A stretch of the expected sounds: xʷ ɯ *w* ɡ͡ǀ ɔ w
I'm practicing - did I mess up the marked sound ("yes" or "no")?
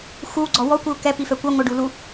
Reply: no